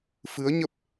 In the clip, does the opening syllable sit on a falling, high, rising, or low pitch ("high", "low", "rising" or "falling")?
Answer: rising